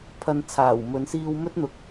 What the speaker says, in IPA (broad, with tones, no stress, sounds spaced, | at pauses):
pʰ ɐ˧ n t͡sʰ aː˨˩ w m ɵ˨˧ n s iː˧ w m ɵ˥ t̚ n̪ ʊ˨ k̚